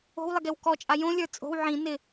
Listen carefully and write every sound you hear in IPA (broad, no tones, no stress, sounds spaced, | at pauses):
o̤ w lˠ ɪ ɡ e w k ɔ t͡ʃʼ a j õ lʲ ə˞ t͡sʼ o̤ w ʕ ĩ n ɪ